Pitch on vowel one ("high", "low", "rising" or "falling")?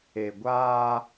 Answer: low